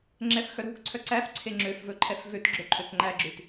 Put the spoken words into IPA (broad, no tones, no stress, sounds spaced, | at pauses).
ŋ͡ǁ ɛ f x œ ɾ o̤ k ǀʰ œ ǀ æ f ǀʰ e ŋ͡ǁ ø f v ɵ ǃʰ ɛ f v ø t ɡ͡ǁ ɵ ǃʰ ø k ŋ͡ǃ æ ɡ͡ǁ ʉ t